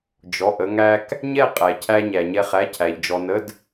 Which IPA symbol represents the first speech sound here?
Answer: d͡ʒ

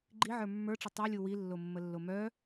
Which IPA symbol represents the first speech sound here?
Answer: ɡ͡ǃ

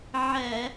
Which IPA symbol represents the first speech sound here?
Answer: ʕ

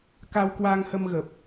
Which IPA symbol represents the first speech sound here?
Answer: k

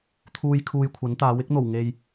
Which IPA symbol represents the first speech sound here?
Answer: t̪ʰ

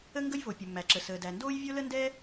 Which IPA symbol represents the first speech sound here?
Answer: ə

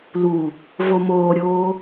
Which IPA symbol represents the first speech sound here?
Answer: l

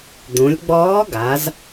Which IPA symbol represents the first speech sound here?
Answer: d̪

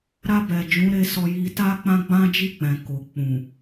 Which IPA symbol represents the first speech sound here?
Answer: ɾ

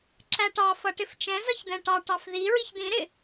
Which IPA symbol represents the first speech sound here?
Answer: ǁ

